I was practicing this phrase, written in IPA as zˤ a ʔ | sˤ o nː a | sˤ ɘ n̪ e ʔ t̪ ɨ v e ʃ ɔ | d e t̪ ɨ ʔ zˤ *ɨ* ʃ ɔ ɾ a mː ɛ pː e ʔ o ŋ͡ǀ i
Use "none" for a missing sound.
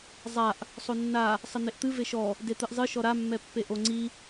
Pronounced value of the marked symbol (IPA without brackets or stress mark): ɨ